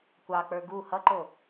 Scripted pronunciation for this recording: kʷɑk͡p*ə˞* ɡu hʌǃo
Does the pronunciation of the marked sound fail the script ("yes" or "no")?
no